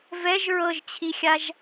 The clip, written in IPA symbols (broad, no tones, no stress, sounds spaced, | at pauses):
v ɛ ʒ ɹ ɤ ʒ t͡ɕʰ i xʲ a ʒ